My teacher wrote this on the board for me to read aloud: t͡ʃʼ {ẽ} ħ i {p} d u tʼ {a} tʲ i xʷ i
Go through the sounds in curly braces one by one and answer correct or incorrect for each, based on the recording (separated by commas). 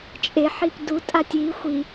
incorrect, correct, correct